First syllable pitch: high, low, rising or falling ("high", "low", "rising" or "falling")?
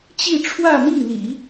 falling